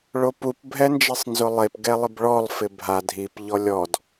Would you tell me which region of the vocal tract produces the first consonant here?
retroflex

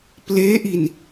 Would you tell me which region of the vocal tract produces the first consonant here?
lips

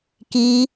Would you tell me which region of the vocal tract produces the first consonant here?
velum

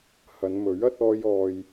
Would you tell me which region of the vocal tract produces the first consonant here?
throat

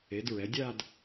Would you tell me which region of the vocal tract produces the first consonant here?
tongue tip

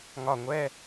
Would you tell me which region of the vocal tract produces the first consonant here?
velum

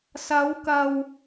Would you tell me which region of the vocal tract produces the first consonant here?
tongue tip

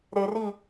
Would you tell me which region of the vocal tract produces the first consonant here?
tongue tip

